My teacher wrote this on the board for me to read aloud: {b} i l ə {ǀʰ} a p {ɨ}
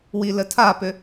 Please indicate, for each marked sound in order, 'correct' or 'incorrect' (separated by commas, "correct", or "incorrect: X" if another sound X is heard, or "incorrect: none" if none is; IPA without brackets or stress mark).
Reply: incorrect: w, incorrect: tʰ, incorrect: ʏ